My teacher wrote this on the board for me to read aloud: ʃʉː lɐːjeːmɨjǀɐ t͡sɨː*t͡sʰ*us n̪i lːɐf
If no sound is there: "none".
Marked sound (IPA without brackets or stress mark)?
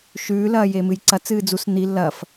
d͡z